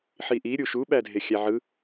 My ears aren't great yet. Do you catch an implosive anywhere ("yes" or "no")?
yes